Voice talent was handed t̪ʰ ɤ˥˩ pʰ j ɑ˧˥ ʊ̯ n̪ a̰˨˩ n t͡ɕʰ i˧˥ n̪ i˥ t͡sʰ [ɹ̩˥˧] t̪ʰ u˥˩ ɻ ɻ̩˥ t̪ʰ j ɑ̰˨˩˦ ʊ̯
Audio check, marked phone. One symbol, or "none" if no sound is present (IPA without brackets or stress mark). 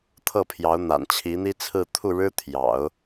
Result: ɹ̩˥˧